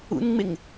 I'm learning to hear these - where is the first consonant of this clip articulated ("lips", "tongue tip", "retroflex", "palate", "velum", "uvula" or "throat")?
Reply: tongue tip